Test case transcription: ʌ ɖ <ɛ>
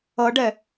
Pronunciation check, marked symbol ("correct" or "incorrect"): correct